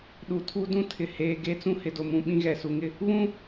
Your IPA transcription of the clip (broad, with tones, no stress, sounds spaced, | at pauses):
ɗ u˨ tʰ u˦ d ũ˦ tʰ ɪ˨ h eː˨ ɡ e˦ t͡s ũ˦ h ɪ˨ d o˨ m ũ˨ ɓ ĩ˦ ɣ ɛ˨ s u˨ ŋ ɪ˦ | β ũ˦